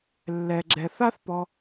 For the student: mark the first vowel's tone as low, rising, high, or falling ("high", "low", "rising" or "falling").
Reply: low